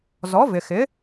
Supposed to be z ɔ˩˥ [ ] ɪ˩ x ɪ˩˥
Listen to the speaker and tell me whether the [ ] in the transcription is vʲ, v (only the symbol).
v